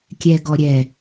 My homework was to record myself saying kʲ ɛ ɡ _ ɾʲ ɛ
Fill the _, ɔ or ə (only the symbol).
ɔ